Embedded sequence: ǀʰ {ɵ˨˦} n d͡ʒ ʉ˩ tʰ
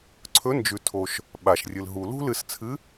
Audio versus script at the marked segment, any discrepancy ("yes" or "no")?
no